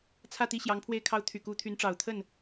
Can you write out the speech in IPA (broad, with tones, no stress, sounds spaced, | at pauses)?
t͡sʰ ä˥˩ t̪ i˥ ɕ j ɑ˧˥ ŋ pʰ w e˥˩ ɪ̯ kʰ ɑ˥ ʊ̯ t̪ʰ y˨˩ k u˧˥ t̪ʰ y˧˥ n ʈ͡ʂ ɑ˨˩ ʊ̯ t̪ʰ ə˥˩ n